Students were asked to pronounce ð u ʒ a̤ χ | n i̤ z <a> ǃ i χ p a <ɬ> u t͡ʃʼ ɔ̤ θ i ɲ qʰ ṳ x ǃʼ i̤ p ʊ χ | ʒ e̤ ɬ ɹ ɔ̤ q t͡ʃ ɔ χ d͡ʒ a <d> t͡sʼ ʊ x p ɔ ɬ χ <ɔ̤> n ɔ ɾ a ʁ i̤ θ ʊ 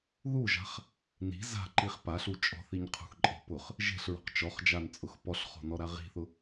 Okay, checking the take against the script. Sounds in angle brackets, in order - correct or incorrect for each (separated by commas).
incorrect, correct, incorrect, correct